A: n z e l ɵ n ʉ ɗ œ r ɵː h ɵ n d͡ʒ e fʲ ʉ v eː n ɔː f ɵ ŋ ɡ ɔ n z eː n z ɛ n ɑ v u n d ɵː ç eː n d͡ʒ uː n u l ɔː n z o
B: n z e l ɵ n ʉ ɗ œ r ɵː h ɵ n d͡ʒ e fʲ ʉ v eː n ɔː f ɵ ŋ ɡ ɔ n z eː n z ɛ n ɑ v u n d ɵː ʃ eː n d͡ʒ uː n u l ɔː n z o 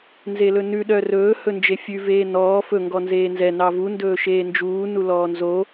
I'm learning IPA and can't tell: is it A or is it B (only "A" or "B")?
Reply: B